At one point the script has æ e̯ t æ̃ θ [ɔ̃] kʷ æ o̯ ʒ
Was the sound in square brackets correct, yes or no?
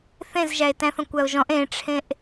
yes